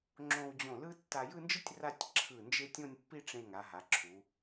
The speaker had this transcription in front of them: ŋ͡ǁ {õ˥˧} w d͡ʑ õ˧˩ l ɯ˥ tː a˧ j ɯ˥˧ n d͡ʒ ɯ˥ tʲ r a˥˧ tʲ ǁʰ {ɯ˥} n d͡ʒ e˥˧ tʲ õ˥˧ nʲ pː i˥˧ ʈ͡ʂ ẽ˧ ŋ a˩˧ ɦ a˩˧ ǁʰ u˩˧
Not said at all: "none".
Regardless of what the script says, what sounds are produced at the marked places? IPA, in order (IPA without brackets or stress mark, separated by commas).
õ˧, ɯ˧˩